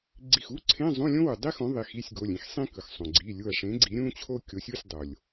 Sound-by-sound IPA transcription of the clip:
ɡ͡ǀi˧˩xu˧˥˧ ǀʰẽ˧˥˧ zˤũ˧˥˧lʲõ˥wu˩ dˤi˥xõ˨˥ ðˤi˩˧˩xi˧˥˧sʲɡo˩˧˩lʲĩ˥x sˤĩ˥kɯ˩xsˤõ˩ ɡ͡ǀi˩˧˩lʲu˧˩ɐ̯ʂẽ˨˥ ɡ͡ǀi˨˥ɾʲũ˥t͡ɕʰo˥ kʲo˨˥sʲu˧˥˧sʲdˤo˩lʲ

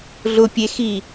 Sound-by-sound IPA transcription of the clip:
ɮʊpʲexi

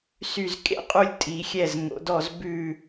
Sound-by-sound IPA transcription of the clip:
sy˧˩zkʼḛ˥qʼu˧lʲ tʼi˩˧xʲɛ˧˩z ŋo̰˩˧dɔ˧˩zbʉ˧˩

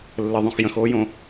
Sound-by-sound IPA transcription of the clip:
lːəðˤõx jə̃xoːjõ

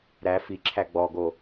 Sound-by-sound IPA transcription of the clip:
ɾæ fiǁʰæ ɡ͡bɔɡo

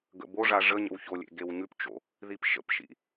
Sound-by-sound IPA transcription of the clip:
ɡə̰boʐa ʐəɲə̰w çolʲḛ ɡewɲʉpt͡ʃo̰ | ðipʃə̰pʃḭ

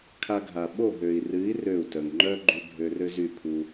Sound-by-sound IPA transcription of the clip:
kʰa˧ɡʱa˨ ɓo˦˨ɦø˨i̯rɨ˨˦i̯ rø˦˨u̯tœ˨ŋ ŋ͡ǃœ˦ɡ͡ǃy˧ bʱø˧rø˦zy˦˨pʰu˧

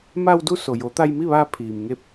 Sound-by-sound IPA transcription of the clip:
ma˧wdu˧ so˩jo˩˧ t̪a˧jmi˥˨ʋaː˧ pʰiː˩mŋe˧p̚

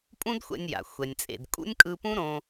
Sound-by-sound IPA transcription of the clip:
pʼũ˥dxʷɛ̰˧nʲja̰˩ xʷɛ˩nʲt͡sʼḛ˩d kʼṵ˥nʲkʼɯ˧pũ˥ ɾõ˧

